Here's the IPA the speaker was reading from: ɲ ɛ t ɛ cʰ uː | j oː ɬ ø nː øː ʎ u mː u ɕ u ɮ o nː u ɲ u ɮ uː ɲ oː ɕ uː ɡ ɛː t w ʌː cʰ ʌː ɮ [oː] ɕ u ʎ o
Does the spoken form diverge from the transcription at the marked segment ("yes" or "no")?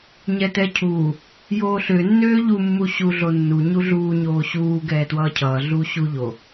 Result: yes